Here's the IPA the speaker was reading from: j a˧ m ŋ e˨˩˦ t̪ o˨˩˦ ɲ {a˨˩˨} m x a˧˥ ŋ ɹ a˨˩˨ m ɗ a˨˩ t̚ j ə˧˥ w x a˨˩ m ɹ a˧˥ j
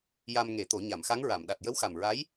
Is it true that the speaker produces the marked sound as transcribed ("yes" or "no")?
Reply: yes